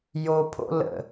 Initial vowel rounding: rounded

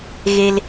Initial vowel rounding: unrounded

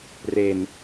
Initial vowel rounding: unrounded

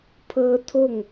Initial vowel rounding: unrounded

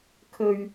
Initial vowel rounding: rounded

